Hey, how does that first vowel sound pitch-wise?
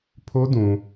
high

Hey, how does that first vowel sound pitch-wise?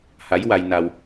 rising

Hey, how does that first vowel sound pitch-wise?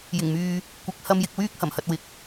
low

